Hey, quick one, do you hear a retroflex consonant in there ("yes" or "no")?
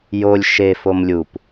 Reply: no